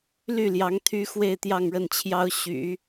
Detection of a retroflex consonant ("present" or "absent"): present